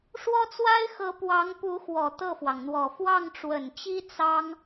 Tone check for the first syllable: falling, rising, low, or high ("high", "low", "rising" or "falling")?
high